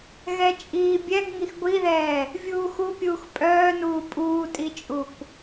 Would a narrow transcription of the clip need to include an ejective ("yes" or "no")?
yes